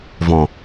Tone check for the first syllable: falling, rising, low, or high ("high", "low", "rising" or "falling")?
low